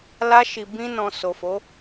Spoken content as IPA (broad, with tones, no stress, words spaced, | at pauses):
la˧ʃi˨bĩ˧nɔ̃˨ so˨fo˨˦